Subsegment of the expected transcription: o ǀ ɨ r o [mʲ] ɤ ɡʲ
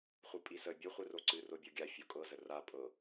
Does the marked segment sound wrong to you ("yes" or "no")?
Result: yes